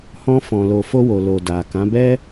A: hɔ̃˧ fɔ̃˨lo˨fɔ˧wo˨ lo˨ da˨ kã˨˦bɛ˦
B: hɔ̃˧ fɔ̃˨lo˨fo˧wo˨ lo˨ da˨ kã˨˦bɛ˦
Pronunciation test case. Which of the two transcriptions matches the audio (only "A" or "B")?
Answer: B